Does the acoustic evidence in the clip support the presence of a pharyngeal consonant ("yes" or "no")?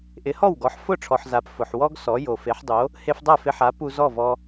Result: yes